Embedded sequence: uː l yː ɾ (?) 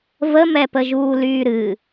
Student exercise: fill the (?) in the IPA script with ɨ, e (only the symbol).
ɨ